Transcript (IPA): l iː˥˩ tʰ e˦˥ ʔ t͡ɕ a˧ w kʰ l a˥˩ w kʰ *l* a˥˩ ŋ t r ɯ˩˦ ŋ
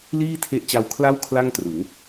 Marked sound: correct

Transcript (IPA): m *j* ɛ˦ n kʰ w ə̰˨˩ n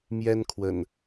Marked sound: correct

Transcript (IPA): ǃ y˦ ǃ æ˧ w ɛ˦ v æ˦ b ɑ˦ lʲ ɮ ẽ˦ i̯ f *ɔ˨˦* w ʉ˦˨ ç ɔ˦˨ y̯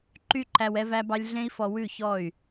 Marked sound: incorrect: ɔ˧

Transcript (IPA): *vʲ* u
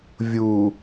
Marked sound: correct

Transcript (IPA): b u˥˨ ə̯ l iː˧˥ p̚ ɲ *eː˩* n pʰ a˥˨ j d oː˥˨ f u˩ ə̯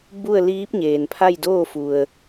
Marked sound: correct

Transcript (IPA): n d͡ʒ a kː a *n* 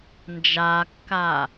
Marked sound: incorrect: none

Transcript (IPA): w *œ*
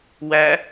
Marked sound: incorrect: æ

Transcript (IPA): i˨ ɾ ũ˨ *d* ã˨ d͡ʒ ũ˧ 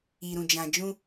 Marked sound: incorrect: d͡ʒ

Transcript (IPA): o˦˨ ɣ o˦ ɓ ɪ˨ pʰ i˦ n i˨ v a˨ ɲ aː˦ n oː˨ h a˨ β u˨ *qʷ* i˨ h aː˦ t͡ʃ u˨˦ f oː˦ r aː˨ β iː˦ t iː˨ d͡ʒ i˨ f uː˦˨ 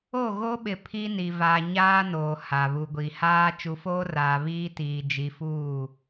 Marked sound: incorrect: ɡʷ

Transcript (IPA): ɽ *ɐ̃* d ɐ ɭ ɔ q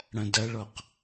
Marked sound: correct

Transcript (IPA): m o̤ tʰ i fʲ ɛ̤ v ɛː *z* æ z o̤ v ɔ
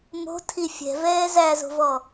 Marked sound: correct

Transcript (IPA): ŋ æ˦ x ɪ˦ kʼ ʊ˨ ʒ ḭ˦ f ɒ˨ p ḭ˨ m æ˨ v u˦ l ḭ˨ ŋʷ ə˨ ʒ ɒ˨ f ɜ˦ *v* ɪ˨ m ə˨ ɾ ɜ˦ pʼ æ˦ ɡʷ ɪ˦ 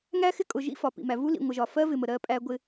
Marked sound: correct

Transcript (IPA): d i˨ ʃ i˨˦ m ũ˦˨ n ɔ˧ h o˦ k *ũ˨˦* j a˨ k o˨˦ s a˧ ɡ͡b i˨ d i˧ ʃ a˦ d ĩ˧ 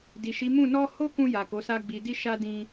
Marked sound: incorrect: ũ˧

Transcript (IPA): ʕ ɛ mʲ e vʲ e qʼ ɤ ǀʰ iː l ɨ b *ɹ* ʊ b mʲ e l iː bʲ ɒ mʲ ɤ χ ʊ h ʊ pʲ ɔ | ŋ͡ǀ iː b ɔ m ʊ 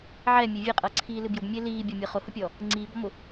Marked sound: incorrect: j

